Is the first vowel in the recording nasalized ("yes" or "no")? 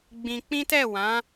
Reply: yes